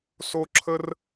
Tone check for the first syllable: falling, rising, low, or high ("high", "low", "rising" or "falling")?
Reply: high